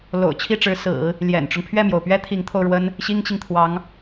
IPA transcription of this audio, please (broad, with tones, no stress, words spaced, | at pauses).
lo̰˨˩ʊ̯t͡ɕʰi˥˩ʈ͡ʂɻ̩˧˥ sɹ̩˨˩˦ | ljɛ̰˨˩nʈ͡ʂʊ˦ŋ pʰɥɛ˥˩mjo˩ʊ̯pɥɛ˥ t̪ʰi˧˥ŋt̪ʰo˧ʊ̯ ɻwə˥n | ɕi˥ŋt͡ɕi˨ŋ t̪ʰwɑ˧˥ŋ